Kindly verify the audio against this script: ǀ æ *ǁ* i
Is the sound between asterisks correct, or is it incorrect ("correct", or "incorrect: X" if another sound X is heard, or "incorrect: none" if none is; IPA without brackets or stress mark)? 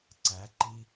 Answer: incorrect: ǃ